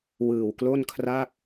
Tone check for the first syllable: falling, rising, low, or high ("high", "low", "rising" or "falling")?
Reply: low